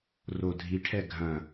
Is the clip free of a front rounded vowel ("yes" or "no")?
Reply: yes